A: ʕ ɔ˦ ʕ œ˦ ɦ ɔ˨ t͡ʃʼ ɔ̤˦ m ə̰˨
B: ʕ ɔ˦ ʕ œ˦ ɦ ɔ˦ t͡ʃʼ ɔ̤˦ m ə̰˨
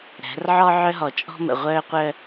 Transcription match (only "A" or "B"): A